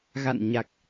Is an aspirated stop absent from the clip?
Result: yes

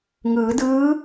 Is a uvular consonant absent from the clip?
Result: yes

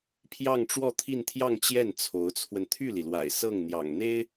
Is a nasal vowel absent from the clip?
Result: yes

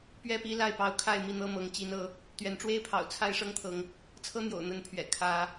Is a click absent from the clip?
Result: yes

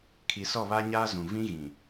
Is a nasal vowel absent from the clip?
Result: no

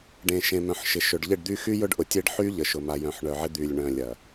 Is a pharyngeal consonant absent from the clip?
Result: no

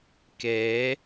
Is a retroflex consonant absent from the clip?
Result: yes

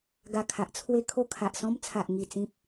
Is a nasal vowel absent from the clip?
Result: no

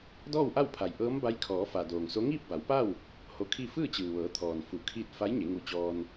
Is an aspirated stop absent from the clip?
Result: no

